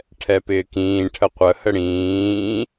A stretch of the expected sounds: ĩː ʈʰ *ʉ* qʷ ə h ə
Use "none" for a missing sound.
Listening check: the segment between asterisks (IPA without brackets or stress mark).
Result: ə